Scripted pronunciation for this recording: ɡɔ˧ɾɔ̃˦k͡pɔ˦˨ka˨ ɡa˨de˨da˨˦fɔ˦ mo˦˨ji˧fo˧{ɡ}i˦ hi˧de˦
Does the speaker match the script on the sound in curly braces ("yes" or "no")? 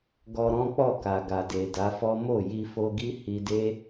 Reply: yes